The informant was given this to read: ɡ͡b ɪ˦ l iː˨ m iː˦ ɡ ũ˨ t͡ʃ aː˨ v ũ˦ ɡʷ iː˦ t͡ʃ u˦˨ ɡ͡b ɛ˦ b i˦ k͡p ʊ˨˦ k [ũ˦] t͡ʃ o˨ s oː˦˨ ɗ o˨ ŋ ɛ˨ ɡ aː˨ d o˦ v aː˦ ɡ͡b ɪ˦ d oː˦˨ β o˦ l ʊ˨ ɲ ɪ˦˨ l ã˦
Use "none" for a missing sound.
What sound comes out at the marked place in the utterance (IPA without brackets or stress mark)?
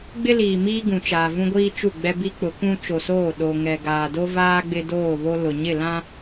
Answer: ũ˦